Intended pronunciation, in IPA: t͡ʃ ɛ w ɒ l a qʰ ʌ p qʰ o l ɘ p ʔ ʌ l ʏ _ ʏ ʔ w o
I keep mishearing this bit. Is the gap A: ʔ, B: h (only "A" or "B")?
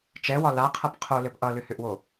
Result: B